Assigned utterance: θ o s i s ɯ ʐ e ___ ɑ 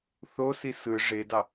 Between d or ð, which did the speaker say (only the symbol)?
d